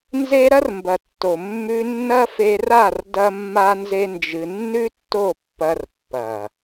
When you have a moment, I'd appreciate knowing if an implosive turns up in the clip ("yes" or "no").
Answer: no